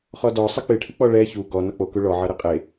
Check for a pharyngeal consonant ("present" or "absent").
present